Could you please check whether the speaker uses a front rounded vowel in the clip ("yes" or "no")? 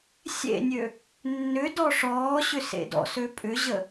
yes